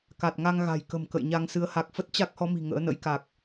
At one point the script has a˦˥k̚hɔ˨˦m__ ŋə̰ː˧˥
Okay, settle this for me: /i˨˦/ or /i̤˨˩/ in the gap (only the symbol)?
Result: i̤˨˩